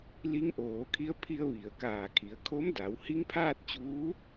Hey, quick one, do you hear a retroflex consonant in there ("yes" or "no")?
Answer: no